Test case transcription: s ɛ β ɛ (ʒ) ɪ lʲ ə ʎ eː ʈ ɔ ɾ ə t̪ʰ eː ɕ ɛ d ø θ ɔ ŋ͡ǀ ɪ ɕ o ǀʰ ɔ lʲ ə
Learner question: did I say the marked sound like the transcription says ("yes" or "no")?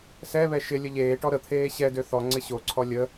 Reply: no